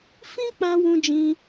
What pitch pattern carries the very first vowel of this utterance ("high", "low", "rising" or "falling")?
high